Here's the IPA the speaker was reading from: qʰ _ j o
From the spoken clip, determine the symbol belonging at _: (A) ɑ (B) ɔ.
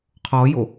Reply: B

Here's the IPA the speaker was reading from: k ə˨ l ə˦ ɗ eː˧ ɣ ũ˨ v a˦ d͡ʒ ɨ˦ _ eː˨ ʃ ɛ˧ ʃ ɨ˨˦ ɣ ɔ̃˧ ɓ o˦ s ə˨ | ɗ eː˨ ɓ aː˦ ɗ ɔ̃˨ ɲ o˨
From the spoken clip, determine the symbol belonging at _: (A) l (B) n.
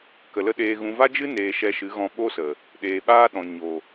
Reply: B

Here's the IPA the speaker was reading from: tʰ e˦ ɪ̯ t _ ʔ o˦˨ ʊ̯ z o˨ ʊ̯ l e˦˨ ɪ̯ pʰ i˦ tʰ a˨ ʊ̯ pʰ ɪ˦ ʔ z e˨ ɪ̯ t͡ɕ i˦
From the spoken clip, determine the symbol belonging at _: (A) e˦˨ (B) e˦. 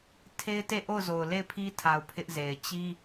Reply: A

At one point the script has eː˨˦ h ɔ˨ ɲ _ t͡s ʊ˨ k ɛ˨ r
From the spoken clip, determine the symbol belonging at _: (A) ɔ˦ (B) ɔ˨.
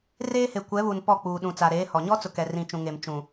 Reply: A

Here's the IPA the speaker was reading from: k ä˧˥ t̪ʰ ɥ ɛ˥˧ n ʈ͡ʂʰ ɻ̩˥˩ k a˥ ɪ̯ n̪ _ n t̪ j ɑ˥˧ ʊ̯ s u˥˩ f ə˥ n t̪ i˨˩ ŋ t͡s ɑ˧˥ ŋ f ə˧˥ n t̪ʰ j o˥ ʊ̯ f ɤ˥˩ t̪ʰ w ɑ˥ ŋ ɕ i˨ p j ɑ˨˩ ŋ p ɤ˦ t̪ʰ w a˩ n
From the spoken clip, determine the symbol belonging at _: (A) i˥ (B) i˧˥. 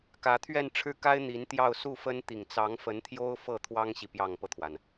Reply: B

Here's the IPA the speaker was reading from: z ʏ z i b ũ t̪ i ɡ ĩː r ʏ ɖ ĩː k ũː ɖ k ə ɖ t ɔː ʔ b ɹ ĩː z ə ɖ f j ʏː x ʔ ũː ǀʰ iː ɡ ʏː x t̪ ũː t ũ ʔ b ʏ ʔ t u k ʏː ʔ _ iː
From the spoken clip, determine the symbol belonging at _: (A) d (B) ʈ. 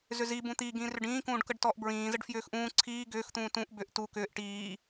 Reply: B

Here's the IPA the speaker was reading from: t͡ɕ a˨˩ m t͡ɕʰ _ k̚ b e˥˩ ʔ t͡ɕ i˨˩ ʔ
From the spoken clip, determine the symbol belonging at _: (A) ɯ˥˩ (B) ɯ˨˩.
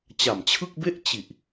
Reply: A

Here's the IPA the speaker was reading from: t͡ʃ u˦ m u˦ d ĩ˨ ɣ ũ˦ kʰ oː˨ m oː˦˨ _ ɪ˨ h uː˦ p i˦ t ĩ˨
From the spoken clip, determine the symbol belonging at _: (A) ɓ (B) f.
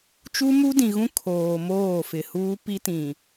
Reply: B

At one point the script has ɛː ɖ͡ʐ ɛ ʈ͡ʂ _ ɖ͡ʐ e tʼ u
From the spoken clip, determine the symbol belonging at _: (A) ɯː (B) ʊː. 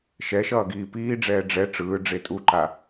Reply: A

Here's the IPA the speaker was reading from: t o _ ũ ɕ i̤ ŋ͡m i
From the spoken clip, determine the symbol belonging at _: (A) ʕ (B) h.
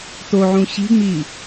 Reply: A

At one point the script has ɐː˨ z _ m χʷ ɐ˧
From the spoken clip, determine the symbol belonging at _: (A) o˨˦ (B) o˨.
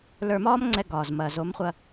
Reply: A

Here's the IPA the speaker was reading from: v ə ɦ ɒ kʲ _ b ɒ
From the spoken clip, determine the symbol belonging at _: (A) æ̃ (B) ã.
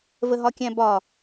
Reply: A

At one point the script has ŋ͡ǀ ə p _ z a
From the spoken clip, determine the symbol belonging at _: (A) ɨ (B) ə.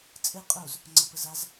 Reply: B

